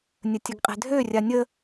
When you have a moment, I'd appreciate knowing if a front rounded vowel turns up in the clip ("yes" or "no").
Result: yes